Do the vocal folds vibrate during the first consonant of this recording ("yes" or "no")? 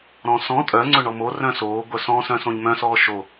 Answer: yes